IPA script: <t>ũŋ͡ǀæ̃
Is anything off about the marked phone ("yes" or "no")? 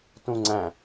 no